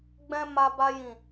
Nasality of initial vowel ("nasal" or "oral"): nasal